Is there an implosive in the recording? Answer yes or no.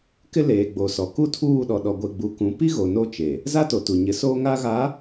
yes